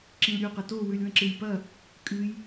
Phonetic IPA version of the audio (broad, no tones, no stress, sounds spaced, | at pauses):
ǁ ĩ l ɾʲ u q ɐ t o w ʉ lʲ w ɐ̃ ǁ ɨ j p ɐ | kʼ ɨ j